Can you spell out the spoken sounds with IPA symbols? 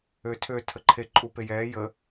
ø tʰ ø tʰ ə ǃʰ e ǃʼ u p e j ɛː j ə

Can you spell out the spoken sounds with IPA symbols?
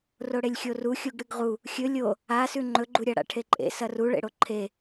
r o ɽ e lʲ xʲ o r u xʲ u ɡ ɽ ɨ ɡ ʁ u | xʲ ɵ lʲ o | a s ʉ ŋ͡ǃ ɵ ɡ͡ǃ u ɾʲ a ɽ a̰ ʈʰ e ǃʼ ḛ s ɐ r u ɭ ḛ ɽ o ǃʰ e

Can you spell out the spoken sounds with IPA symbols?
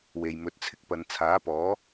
w e˨ j m ɵ˨˥ t̚ t͡sʰ ɪ˧ k̚ p ɐ˨ n t͡sʰ aː˨˥ p ɔː˨˥

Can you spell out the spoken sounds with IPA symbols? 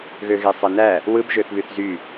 ɣ ø ɣ e sˤ e n æ | w ɯ b ʒ ø θ β y θ z y

